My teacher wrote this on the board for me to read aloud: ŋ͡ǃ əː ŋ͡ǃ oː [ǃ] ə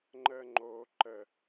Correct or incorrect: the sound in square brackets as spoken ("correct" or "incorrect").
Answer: correct